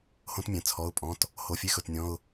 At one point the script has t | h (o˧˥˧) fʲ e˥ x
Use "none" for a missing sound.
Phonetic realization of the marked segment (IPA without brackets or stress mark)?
o˧˥˧